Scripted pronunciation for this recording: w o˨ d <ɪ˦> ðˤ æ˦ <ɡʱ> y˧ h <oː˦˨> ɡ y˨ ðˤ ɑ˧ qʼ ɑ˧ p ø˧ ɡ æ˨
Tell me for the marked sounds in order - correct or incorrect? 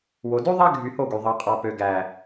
incorrect: y˦, correct, incorrect: o˦˨

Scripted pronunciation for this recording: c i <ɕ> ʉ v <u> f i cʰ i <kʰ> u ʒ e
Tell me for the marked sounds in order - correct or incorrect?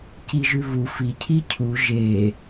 incorrect: ʒ, correct, incorrect: cʰ

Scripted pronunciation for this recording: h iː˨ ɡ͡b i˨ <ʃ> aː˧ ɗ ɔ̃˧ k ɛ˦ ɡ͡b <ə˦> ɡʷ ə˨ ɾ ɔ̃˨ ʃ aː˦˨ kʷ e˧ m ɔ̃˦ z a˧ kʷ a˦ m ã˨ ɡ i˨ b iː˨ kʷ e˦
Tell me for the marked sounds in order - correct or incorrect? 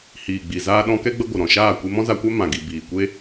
incorrect: z, correct

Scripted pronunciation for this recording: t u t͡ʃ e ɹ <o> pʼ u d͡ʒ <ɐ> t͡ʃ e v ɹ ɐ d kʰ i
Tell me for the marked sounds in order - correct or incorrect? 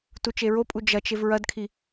correct, correct

